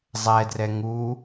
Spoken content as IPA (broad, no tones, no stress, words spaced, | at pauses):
zˤɛdrɛ ŋu